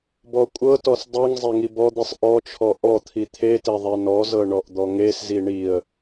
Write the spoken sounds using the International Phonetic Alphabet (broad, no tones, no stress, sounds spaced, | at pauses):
b ɔ kʷʼ ɤ t ɔ s dˤ i ŋ zˤ e ŋ i b ɔ d̪ i sˤ ʔ ɔ t͡ʃʰ ɔ ʔ ɔ t̪ʰ i t̪ʰ e t e ðˤ i n ɔ z ɤ ɳ ɔ ʔ d̪ ɔ ŋ e s z i ɳ i ə̯